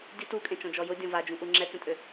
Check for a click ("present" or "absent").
present